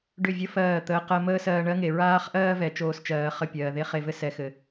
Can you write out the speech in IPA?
ɖ ʏ˦˨ vʲ ə˦ f ɜː˦˨ t̪ əː˧ q ɜ˧ m əː˦ s ɜː˧ ɳ ɜ˦ ŋ e˨ ɹ aː˦ χ ʔ ɜː˦ v ɛ˨ t͡ʃ oː˦ s t͡ʃ ɜː˨˦ χ ə˦˨ pʲ ɜː˨ ð e˦ χ e˨ v ɘ˦ s ɛ˨ x ɘ˨

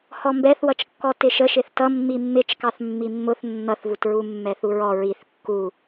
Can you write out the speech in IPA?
h ɔ m b ɛ θ w ʌ t͡ʃ kː ɔ t ɪ ʃ ə ʃ ɪ θ t ʌ mː i mː ɪ t͡ʃ k ɑ θ mː i mː ʊ θ nː ʌ θ v u t ɹ u mː ɛ θ u ɹ ɔ ɹ i θ kː u

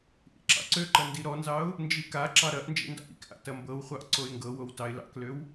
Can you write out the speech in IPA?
ʔ ḭ ǁ ɑ̰ ǀ ø ǃ ɐ n d i ɾ ɔ n z ɑ ʊ̯ | n d͡ʒ i k a ǁ ɑ ɾ ɐ ʔ n d͡ʒ ḭ n d ɑ̰ ʔ ḭ k ʔ a̰ t ɐ m b ɤ w χʷ ɑ ʔ ǀ o ɪ̯ ŋ ɡ ɤ w o w t ɑ ɪ̯ l ɑ̰ k l ø w

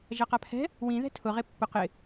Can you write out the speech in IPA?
ʒ a q a pʰ ɛ̤ | w ĩ ð ɛ̤ tʰ ʊ ʁ e pː ʊ q ɪ

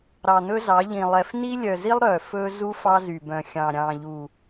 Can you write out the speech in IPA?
ɾ ɑ˨ n̪ ɵ˦ z ɑ˨˦ ʎ ĩ˨ lˠ ɛ˨ f n i˦ lʲ œ˨ z i˦ lˠ ɾ œ˨ f ɵ˦ z u˦ f ɑ˦ z y˨ b œ̃˨ xʲ ɑ̃˨ ɾʲ ɑ̃˨ ʎ u˨

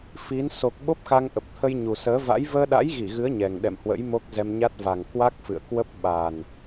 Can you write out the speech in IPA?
f i˨˦ n s o˨˩ k̚ ɓ o˦˥ p̚ x a˧ ŋ ʔ ə˨˩ p̚ t̪ʰ ə˧ j ɲ u˨˩ s əː˨˦ v a̰˧˥ j v əː˧ ɗ a̰˧˥ j ɣ i˧˩ ɣ ɨ˨˦ ə̯ ɲ ɛ˨˩ ŋ ɗ ɛ̰˧˨ m h w ə̰˧˥ j m o˦˥ k̚ z ɛ˧ m ɲ a˦˥ t̚ v a˨˩ ŋ k w a˦˥ k̚ f ɨ̰˧˨ ə̯ k w ə˦˥ p̚ ɓ a˨˩ n

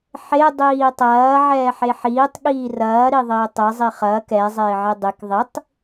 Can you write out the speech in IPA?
ħ e dˤ iː tˤ ɐː ʕ ɛː ħ e ħ iː tˤ ɠ iː r ɐː ɾ i ðˤ ɪː tˤ e zˤ i χ ɐː k ɛ zˤ ɪː ʕ e dˤ ɪ k ðˤ i tˤ

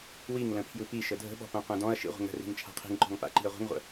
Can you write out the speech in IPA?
w i ŋ l ə̃ pʰ j ɯ p i ʃ ə dʱ ə̤ ɓ ɔ̤ p õ qʷ ɛ̃ d ɔ̃ ɐ̯ ʃ ḭ ʁʷ ə̤ ŋ ɾ ə̤ r i̤ ŋ t͡ʃʰ a̤ qʰ i̤ ŋ ǃ ɔ̤ ŋ p a̰ ǃ i̤ ɐ̯ ʁʷ ə̤ ŋ ʁʷ ə̰

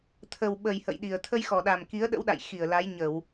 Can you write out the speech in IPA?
t̪ʰ ə˨˩ w ɓ ə˨˩ j h ə̰˧˨ j ɗ i˨˩ ə̯ t̪ʰ ə˧ j x ɔ˨˩ ɗ a˨˩ m k i˨˦ ə̯ ɗ ə̰˧˥ w ɗ a̰˧˨ j x i˧˩ ə̯ l a˨˦ j ɲ ə˧˩˨ w

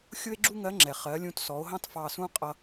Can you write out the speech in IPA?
xʲ ʊ˥ e̯ ɡ͡ǁ u˥ ŋ ɜ˧˥ ŋ͡ǁ ɛ˩ χ ɜ˩˧ lʲ ũ˧ t s ɔ˩˧ o̯ ɦ ɑ̃˥ t f ɑ˧ s ũ˥ qʼ ʌ˧

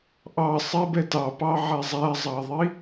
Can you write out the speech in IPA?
ʔ ɑ sˤ ɛ b ɛ t ɑ p ɑ ʕ æ zˤ æ zˤ ɑ ðˤ i

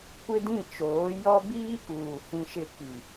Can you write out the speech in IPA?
kʷ ɪ˦ d ĩ˦˨ t͡ʃ oː˨˦ j ɔ˦ b iː˦ k uː˨ h ĩ˦ ʃ ɪ˦ k i˨

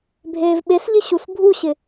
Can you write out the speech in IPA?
bʱ eː v ɓ e s ʎ ɪ ɕ u s bʱ u ɕ ɪ

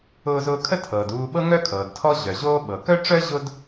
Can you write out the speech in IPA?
ʊː˧ z ʊː˧ kʰ ə˥ tʰ ɤː˩ d uː˧ ɓ ɤ˥ ŋ œ˥ kʰ ɤː˩ d tʰ ɔ˥ ʑ œ˩ ʑ oː˥ ɓ ɤ˩ k œ˥ ʈ͡ʂ œ˥ ʑ ʊ˧ d

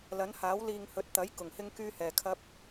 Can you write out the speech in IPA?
l ɐ˨˥ n h aː˨˥ w l iː˨ ŋ h ɵ˨ t̚ t̪ ɐ˨˥ j k ʊ˨˩ ŋ h ɪ˥ ŋ k yː˥ h ɛː˨ kʰ ɐ˥ p̚

